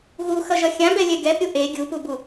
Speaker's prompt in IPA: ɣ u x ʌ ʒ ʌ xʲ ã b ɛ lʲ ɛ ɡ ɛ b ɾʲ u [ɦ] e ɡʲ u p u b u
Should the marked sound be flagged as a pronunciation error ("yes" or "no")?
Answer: yes